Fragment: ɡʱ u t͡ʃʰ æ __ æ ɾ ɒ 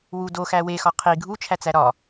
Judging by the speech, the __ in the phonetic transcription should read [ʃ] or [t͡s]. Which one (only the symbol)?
t͡s